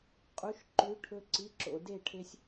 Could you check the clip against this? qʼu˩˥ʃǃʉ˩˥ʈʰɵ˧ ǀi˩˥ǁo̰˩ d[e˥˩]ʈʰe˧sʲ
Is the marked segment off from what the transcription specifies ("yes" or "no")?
no